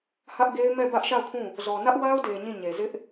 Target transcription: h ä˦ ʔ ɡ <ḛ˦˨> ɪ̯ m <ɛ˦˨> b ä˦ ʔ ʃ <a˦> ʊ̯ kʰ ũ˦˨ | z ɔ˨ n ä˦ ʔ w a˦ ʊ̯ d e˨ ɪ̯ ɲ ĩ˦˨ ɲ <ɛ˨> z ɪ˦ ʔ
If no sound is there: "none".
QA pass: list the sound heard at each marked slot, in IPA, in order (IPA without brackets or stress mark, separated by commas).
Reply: e˦, ɛ˦˨, a˦˨, e˨